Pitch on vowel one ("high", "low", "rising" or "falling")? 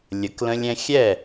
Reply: rising